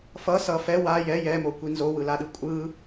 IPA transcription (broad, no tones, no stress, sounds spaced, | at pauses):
f ʌ s ʌ f ɛ w a j ɛ j ɛ m o kʷ i n z o w ɯ l a ɗ ɯ kʷʼ ɯ